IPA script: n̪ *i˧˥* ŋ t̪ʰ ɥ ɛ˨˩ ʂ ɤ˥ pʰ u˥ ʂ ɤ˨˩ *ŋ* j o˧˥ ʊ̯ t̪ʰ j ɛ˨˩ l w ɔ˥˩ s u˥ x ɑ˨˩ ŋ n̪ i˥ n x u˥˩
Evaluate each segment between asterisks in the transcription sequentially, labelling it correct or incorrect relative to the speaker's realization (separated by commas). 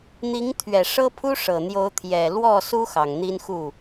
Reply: correct, incorrect